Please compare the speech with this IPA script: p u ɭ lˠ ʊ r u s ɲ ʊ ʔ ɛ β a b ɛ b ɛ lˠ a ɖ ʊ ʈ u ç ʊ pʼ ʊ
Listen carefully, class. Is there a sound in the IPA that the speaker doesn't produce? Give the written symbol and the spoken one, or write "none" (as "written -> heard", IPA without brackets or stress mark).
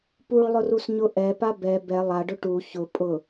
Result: β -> p